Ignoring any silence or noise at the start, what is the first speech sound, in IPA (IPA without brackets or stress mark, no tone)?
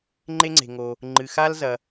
ŋ͡ǃ